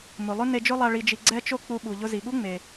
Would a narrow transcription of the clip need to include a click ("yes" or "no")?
yes